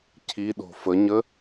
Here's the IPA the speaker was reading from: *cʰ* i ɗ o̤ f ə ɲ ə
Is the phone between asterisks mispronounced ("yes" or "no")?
no